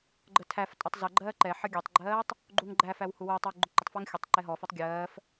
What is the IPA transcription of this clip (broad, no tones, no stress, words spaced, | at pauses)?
ɡ͡ǃətʰæftʼʊtˤ zʌɡ͡ǃɜː ǃɛħʌ ɡʲɛtˤɡ͡ǃɜːtˤ | ɡ͡ǃuŋɡ͡ǃæfæw huwʊːtˤɔw ɡ͡ǃʊǃətˤfəːŋ xʲʊtˤ ǃɛɦɔfɛtˤ ɡʲɜːf